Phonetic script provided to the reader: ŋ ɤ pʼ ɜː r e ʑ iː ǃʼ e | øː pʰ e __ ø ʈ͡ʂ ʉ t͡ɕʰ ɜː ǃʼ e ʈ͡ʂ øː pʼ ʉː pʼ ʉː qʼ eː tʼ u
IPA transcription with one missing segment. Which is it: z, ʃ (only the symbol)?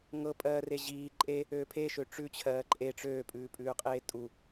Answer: ʃ